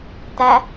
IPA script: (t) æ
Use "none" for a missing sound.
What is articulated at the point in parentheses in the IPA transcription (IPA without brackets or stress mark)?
t